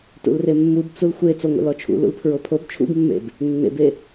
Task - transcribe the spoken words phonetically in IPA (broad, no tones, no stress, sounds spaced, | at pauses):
t ṵ l r e mː u b t͡s u l xʷ e t͡s o ŋʷ ḛ l ɔ t͡ʃʰ ṵ l ṵ l pʰ ɹ o pʰ o b t͡ʃʰ ṵ ɡ mː ḛ b | nː ḛ b e